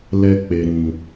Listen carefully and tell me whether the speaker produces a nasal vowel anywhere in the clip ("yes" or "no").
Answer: yes